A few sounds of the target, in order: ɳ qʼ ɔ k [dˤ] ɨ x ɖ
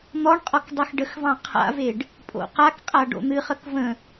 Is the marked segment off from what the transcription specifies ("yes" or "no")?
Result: no